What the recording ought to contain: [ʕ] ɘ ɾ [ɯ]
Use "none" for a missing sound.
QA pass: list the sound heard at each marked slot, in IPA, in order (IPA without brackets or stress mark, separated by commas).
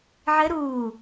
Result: ʕ, u